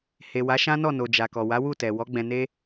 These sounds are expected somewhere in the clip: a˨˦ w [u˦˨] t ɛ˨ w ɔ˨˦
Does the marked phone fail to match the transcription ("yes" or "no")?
no